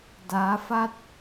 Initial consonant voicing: voiced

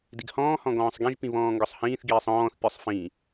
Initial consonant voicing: voiced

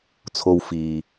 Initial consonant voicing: voiceless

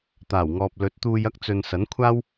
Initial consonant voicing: voiceless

